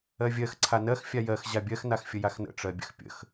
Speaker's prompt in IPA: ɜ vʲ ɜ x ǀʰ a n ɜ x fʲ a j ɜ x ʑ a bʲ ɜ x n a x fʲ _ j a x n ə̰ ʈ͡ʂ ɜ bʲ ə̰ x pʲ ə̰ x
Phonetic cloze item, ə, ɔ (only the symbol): ə